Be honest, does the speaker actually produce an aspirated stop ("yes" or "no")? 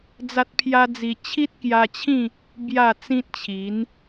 yes